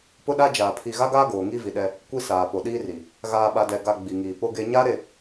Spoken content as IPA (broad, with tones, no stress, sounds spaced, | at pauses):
p ʊ˦ ɗ a˦ d͡ʒ aː˨ pʰ i˨ ɣ a˦ ɡ aː˦ ɡ oː˨ ŋ i˦ v i˨ ɗ ɛ˦ | kʷ i˦ s aː˨ p o˨ ɗ iː˦ r i˨ | ɣ aː˨ ɓ a˨ d ɛ˨ ɡ a˨ ɡ͡b i˨ ŋ iː˨ p o˦ ɡ e˦ ɲ a˦ ɾ e˦˨